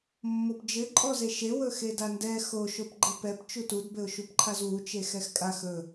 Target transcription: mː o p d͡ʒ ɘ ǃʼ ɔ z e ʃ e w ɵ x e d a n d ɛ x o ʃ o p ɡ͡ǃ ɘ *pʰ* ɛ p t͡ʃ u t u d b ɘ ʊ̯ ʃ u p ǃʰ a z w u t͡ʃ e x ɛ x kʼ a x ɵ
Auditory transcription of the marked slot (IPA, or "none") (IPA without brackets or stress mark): p